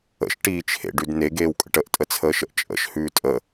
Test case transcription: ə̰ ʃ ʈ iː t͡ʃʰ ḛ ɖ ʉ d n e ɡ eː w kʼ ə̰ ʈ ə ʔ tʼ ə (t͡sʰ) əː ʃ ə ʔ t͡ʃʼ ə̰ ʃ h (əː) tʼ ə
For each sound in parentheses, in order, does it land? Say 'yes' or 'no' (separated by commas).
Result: yes, no